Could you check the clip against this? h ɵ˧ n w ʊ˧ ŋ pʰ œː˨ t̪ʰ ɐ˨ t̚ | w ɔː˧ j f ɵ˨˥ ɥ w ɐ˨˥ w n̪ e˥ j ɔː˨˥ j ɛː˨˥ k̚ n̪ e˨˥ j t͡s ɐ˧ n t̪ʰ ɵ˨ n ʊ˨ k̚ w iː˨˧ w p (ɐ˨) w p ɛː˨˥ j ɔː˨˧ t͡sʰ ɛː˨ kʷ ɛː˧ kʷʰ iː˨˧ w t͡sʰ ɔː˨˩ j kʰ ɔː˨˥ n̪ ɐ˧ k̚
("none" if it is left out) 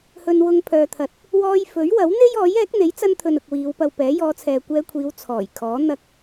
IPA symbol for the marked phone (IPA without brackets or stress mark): ɐ˧